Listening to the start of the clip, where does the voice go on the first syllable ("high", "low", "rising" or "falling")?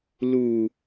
low